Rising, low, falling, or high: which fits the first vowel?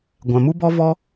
low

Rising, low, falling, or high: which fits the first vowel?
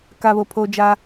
low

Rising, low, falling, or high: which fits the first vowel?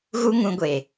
high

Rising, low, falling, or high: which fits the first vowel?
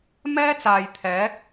high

